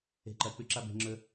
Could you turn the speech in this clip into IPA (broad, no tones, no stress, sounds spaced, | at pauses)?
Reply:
e̤ ǃ ɐ k͡p ʉ ǁ a b e̤ ŋ͡ǁ ɵ